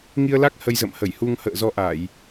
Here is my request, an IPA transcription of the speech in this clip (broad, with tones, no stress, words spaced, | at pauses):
ŋi˧ə̯la˦˥k̚ hə˧jzə̰˧˨m hə˧˩jhu˧ŋ hə̰ː˧˨zɔ˧ʔa˧˩˨j